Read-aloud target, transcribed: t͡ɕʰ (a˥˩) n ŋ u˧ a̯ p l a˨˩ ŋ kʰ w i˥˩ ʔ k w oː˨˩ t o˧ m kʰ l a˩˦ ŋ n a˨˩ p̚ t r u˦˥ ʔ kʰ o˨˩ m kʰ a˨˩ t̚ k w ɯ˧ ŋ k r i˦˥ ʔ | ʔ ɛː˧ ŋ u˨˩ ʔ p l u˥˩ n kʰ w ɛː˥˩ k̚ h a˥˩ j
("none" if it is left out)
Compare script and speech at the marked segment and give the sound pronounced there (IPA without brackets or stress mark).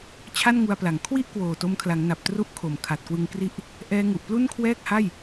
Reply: a˥˩